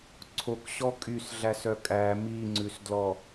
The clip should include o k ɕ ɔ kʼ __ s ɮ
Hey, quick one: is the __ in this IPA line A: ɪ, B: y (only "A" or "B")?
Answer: B